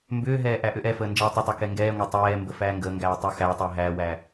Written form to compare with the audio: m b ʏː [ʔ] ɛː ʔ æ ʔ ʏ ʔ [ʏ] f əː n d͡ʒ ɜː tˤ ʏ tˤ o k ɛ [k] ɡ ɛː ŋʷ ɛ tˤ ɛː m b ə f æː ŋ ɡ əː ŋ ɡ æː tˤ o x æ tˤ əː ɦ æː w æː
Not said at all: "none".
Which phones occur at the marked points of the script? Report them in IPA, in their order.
ɦ, ɛ, ŋ

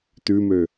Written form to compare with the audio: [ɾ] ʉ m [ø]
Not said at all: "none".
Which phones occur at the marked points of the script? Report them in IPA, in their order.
t, ø

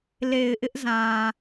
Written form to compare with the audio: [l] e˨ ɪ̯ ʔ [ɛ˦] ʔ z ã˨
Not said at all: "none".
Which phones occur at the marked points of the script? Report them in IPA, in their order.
l, ɪ˦

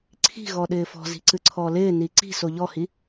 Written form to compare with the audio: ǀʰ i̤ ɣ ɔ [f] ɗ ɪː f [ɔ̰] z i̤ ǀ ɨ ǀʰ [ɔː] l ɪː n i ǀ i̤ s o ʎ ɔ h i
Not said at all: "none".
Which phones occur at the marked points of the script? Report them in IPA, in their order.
none, ɔ̤, ɔː

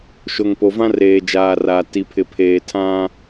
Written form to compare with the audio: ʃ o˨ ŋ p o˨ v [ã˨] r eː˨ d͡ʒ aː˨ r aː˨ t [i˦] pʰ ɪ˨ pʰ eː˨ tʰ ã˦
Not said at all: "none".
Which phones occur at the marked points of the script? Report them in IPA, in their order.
ã˦, i˨

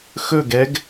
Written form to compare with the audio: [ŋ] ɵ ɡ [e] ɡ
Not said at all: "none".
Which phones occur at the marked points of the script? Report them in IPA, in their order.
x, ɛ

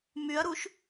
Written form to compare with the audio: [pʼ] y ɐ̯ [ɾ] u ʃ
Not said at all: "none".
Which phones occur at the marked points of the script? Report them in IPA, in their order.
m, ɾ

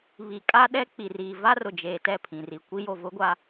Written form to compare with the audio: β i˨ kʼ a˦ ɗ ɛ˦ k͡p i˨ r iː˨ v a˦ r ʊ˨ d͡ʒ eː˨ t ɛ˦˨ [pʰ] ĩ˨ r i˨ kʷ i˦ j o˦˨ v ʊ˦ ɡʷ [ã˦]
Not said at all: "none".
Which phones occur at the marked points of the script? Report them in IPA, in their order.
pʰ, a˦

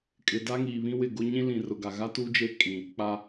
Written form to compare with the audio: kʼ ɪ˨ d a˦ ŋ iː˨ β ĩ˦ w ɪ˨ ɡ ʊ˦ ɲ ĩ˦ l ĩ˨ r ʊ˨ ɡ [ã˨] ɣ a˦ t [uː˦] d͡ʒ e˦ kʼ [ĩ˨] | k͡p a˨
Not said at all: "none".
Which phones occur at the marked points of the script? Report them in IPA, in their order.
a˨, u˦, ĩ˨

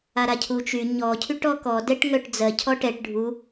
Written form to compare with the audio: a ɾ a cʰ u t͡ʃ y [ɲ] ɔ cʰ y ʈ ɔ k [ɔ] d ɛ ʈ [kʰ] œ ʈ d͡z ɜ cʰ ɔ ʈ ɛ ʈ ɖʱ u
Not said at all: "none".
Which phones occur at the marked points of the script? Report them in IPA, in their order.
ɲ, ɔ, ŋ

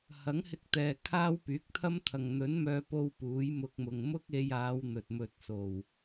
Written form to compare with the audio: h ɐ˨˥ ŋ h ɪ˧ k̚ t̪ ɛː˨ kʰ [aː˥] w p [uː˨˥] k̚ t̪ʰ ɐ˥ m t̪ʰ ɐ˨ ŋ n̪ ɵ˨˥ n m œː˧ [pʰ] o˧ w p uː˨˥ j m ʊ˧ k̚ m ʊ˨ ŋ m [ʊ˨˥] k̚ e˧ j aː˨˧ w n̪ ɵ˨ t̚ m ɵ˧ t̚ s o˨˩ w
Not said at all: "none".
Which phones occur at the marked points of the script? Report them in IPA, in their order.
aː˥, yː˨˥, p, ʊ˥

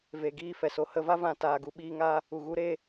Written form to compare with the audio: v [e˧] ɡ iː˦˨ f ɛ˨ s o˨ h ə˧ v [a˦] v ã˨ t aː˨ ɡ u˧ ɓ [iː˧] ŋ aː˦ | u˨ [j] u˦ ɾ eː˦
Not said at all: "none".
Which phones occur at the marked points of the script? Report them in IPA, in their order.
e˨, a˦, iː˧, ɣ

